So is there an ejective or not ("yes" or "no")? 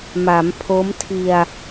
no